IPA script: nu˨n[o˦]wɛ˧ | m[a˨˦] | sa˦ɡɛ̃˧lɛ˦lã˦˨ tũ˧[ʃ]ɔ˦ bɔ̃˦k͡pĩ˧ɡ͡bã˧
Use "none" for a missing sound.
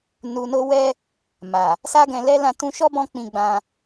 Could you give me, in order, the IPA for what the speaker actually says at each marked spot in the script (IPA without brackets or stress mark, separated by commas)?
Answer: o˧, a˨, ʃ